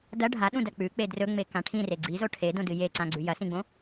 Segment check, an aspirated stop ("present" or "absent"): present